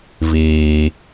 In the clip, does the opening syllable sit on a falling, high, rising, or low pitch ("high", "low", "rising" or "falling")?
low